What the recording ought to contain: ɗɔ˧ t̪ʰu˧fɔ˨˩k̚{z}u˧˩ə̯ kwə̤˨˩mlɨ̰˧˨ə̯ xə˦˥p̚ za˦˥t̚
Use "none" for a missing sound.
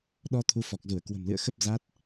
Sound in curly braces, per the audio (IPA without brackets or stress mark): z